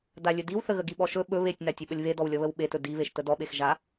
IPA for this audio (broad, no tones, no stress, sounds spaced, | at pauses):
d a lʲ ɵ d i w θ ə ɣ ə ɡ i ɓ ɔ ʃ ɵ ɓ ɵ β e tʲ n a tʲ ɵ ɓ ə lʲ β e d ɔ w lʲ ɔ β ə w ɓ e t ɵ d i β e ʃ t ə d ɔ ɓ e x ʒ a